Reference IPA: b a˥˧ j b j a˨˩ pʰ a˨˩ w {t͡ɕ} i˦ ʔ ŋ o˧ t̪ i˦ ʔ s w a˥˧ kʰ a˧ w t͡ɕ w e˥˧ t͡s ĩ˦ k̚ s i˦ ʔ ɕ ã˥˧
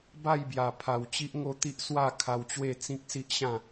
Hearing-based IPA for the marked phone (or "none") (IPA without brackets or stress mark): t͡ɕ